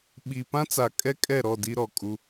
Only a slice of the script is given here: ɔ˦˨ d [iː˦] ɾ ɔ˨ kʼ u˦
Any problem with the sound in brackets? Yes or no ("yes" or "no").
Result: yes